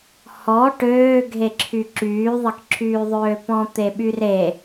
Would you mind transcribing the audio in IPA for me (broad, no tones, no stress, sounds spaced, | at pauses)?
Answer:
h ɔ ʈ øː ɡʱ e ǁʰ y ǁ yː ðˤ ə k ǁʰ yː ðˤ øː p ɔ̃ t̪ e ɓ y r e